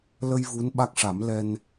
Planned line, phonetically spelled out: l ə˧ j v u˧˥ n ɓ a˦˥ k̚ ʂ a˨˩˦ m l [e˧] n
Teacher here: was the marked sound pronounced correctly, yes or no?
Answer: no